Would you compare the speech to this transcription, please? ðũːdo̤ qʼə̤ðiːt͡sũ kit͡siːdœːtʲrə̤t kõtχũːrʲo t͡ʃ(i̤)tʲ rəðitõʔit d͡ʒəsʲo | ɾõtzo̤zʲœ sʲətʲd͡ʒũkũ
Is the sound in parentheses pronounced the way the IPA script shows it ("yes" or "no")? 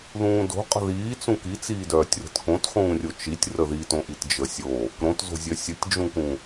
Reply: no